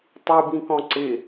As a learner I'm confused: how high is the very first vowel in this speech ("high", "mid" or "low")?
high